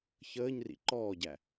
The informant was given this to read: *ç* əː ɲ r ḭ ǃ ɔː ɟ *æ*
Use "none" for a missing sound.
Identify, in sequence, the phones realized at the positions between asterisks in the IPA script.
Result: ç, æ

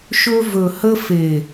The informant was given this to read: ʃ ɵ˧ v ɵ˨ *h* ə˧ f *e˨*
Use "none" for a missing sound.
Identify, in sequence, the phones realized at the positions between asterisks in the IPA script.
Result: h, e˨

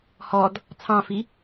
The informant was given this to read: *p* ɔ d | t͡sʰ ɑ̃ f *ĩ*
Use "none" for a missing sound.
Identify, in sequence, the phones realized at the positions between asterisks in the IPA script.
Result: h, i

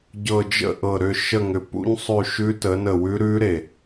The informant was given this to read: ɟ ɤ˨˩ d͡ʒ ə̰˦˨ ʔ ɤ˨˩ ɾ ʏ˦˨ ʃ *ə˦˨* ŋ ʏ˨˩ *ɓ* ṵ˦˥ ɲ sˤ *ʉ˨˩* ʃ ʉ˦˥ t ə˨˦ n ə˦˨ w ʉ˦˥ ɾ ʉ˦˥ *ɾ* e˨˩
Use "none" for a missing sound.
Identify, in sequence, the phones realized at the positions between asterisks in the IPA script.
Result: ə˦˨, p, ʉ˦˨, ɾ

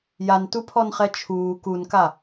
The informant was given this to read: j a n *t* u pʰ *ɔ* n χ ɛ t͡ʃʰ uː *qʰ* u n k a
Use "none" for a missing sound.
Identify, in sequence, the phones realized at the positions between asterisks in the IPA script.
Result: t, ɔ, k

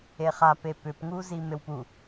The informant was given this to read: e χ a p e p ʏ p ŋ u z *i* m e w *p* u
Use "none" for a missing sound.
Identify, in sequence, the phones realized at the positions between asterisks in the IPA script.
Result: i, p

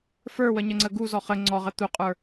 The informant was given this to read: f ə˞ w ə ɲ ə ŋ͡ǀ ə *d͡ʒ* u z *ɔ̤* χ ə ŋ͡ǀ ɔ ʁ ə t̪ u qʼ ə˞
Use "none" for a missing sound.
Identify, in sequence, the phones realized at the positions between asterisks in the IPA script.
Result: ɡ, ɔ

